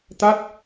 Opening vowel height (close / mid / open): open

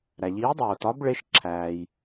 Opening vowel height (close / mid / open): open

